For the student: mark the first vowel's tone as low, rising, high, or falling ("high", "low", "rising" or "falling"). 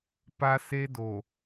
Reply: high